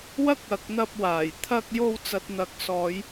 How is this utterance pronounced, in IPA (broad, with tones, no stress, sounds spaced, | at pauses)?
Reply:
w ɐ˥ k̚ ɐ˨ k̚ n̪ ɐ˧ p̚ w aː˨˩ j t̪ʰ ɐ˧ k̚ j o˧ w t͡s ɐ˨ t̚ n̪ ɐ˨˥ k̚ s ɔː˨˧ j